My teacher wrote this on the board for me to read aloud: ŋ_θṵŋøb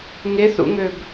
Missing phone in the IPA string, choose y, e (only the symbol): e